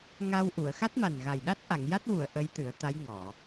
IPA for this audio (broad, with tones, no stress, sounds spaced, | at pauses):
ŋ a˧ w ʔ u˨˩˨ ə̯ x a˦˥ t̚ m a˨˩ n ɣ a˨˩ j ɗ a˦˥ t̚ ʔ a˨˩˨ ŋ j a˦˥ t̚ w u˨˩˨ ə̯ ʔ ə˧˥ j t̪ ɨ˨˩˦ ə̯ t̪ a˧˥ j ŋ ɔ˨˩˨